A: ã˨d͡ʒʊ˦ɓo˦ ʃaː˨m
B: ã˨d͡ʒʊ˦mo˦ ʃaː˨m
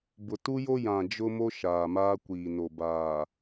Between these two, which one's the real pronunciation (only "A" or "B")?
B